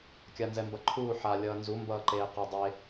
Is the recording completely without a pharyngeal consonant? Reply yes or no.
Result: no